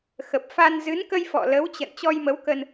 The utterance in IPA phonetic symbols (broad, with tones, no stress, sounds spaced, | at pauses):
x ə˨˩ p̚ f a˧ n z ɨ˨˦ n k ə˧ j f ɔ̰˧˨ l ə˨˦ w t͡ɕ ə̰˧˨ n t͡ɕ ɔ˧ j m ə˨˦ w k ə˧ n